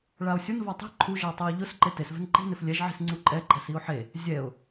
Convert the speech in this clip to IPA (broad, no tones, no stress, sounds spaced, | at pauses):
ɭ a ʊ̯ sʲ ʊ n v a tˤ i̤ ǃʰ u ʒ ɪ ʊ̯ tˤ i ʊ̯ ʎ ʊ s ǃ e t e s v ɛ̤ n ǃ i̤ n ɪ f lʲ ɛ ʒ ʕ i̤ s ŋ͡ǀ u ǃʼ ɛ ǃʼ ɛ̤ s i ʊ̯ ħ e | zʲ ɛ ʊ̯